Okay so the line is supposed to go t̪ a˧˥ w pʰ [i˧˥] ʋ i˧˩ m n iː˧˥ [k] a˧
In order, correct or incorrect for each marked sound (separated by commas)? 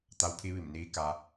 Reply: correct, correct